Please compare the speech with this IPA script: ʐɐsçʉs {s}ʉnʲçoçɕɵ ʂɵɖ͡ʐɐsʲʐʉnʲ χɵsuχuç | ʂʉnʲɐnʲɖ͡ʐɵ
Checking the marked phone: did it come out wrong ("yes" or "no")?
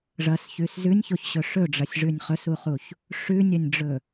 yes